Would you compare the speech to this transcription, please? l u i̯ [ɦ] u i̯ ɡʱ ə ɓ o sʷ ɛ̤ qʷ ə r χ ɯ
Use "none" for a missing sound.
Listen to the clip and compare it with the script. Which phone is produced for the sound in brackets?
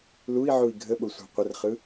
ʕ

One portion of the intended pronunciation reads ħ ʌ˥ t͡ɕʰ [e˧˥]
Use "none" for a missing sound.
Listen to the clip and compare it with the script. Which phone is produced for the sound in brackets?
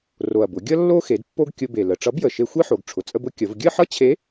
e˧˥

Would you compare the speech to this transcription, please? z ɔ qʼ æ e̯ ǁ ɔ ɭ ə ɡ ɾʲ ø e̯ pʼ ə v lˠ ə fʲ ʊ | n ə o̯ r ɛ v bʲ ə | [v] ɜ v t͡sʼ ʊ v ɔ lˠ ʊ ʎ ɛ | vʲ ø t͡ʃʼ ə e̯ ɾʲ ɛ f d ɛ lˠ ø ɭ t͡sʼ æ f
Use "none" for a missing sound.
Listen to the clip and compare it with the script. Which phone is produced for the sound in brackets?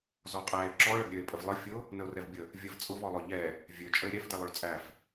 vʲ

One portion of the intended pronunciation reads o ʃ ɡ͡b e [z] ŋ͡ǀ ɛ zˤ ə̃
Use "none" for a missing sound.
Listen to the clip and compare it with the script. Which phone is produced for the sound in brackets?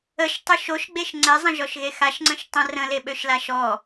ʃ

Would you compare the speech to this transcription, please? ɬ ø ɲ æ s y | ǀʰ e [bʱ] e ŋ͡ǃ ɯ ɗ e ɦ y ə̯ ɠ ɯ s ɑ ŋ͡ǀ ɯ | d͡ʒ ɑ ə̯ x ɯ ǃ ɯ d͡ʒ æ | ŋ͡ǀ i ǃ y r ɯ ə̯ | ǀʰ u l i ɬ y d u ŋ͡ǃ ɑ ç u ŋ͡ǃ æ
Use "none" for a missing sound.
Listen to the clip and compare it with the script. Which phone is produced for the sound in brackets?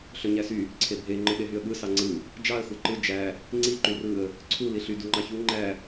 bʱ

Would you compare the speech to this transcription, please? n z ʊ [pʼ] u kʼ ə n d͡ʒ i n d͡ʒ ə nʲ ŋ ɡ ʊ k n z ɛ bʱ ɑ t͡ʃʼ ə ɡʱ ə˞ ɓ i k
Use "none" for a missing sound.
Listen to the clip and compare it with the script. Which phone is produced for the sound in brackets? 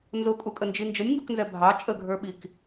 kʼ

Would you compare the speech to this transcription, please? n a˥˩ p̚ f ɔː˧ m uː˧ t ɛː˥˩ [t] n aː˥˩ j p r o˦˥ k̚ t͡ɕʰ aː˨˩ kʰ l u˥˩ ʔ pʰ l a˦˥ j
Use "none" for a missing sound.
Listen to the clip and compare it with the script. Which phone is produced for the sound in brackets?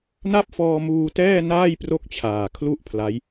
none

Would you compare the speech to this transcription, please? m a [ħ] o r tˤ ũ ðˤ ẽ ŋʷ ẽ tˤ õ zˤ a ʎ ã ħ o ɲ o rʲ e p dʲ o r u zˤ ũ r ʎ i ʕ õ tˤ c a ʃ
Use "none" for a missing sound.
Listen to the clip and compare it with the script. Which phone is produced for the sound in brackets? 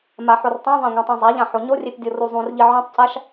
ħ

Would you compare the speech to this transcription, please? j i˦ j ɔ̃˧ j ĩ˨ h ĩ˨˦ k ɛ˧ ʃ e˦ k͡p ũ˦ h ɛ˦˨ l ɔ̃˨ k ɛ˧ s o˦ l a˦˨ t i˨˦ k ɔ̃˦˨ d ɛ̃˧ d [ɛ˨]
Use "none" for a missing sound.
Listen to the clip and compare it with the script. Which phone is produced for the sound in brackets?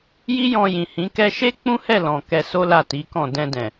ɛ̃˨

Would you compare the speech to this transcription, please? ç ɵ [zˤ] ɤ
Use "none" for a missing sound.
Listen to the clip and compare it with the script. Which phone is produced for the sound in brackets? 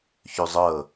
zˤ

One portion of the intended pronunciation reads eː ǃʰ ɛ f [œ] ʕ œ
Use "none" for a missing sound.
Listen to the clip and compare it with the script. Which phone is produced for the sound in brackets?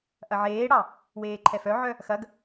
œ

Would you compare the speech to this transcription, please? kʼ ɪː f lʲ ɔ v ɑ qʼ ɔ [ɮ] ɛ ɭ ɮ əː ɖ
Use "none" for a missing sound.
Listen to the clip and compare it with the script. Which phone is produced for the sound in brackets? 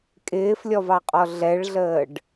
ɮ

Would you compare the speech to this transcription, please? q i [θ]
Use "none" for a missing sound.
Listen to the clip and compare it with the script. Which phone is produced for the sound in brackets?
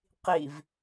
v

